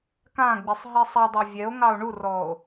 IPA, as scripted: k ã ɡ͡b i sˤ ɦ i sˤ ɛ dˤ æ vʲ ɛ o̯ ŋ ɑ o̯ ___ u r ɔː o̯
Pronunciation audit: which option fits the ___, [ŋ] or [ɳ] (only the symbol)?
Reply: ɳ